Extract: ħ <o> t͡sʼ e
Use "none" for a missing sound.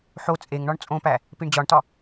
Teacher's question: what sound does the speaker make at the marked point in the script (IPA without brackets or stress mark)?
o